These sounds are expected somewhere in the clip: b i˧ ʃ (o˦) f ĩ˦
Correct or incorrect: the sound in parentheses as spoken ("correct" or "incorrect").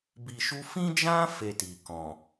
incorrect